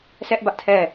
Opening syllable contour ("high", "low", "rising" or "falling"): high